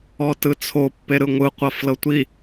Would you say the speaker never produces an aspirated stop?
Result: no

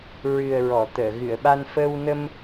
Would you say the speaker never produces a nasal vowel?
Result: yes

